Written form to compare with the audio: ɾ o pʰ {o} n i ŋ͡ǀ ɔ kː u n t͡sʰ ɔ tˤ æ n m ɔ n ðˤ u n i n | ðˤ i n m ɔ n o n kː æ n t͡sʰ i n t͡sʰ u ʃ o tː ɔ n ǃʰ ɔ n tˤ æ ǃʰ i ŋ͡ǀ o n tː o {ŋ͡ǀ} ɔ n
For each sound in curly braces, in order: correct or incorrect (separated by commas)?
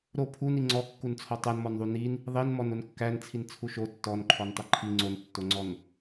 incorrect, correct